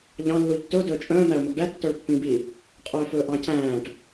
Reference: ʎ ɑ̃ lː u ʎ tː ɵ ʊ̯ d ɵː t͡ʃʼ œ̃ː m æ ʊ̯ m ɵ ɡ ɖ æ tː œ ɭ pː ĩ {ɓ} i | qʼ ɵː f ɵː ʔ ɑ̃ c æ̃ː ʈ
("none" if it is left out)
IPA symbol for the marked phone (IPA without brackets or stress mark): b